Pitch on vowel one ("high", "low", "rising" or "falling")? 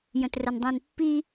low